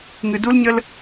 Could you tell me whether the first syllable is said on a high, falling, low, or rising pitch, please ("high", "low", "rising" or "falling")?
low